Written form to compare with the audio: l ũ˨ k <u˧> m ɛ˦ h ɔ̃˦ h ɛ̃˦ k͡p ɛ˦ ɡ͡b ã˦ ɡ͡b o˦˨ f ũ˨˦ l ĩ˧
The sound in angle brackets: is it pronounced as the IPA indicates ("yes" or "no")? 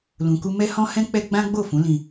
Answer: yes